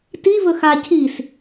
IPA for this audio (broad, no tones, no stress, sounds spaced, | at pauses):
t i v ɵ x a cʰ i s